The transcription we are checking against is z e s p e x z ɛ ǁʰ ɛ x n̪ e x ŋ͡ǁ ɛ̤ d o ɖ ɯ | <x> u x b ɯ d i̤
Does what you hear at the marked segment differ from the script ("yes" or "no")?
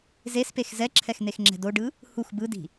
yes